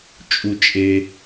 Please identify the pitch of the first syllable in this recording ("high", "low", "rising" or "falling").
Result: low